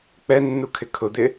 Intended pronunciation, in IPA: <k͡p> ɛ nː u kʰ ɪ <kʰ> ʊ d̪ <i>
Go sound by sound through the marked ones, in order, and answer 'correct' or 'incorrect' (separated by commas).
correct, correct, incorrect